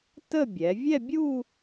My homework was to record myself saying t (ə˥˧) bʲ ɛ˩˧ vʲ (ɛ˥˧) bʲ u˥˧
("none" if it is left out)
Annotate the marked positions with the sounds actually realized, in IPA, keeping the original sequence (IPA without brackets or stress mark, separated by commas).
ə˥˧, ɛ˥˧